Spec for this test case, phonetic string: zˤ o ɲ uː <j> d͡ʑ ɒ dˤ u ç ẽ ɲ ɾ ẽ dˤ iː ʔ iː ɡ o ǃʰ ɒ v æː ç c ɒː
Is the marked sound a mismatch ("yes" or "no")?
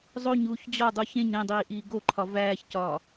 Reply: yes